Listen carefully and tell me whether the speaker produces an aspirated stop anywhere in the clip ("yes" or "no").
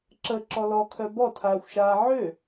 yes